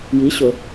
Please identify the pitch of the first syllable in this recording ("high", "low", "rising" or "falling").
rising